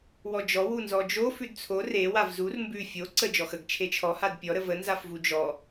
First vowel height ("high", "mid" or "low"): mid